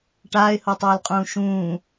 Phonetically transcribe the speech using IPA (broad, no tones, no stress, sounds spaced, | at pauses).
ʈ aː ɪ̯ h o tˤ ɵː l qʼ ũː ʃ ũː